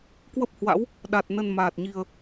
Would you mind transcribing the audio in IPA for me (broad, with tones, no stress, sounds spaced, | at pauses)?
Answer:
k w ə˦˥ p̚ h w a̰˧˥ w | ɗ a˨˩ t̚ n ə˨˩ n m aː˨˩ t̚ ɲ i˨˩ ə̯